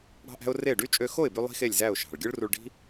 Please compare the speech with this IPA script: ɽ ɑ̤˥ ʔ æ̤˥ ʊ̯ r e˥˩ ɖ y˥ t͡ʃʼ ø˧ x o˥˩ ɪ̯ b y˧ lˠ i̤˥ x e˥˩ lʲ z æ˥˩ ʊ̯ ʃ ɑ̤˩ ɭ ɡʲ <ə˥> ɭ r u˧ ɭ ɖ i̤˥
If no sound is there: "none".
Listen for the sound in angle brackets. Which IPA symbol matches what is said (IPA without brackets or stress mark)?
ɯ˥